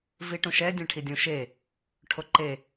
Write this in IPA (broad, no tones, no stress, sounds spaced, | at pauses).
v i ʈ ũ ʃ ɛ dʲ ɛ̃ ʈʰ i dʲ ũ ʃ e | ʈʰ o ǃ e